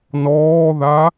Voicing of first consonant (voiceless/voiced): voiced